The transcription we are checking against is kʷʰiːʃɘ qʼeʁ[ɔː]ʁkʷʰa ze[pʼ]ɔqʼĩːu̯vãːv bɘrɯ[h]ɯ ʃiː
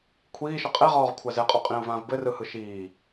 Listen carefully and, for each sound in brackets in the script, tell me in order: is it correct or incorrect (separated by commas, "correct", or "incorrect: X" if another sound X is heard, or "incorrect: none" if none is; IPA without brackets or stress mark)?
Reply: correct, incorrect: qʼ, correct